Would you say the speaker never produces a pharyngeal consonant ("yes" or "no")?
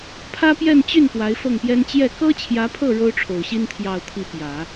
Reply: yes